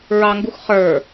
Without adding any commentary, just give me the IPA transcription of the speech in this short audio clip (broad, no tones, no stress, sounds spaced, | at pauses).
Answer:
ɹ ɑ ŋ ɡ u x χ ə˞